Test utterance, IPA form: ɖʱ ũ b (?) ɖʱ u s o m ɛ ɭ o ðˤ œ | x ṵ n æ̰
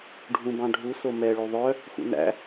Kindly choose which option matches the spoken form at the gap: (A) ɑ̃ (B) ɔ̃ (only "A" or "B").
A